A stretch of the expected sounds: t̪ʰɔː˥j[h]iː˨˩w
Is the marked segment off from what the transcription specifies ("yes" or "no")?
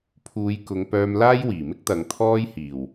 no